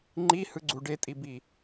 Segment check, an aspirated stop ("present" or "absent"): absent